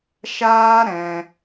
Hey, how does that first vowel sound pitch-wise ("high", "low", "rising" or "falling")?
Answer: high